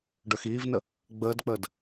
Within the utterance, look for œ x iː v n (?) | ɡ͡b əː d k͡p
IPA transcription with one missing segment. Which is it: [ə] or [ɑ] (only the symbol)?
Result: ə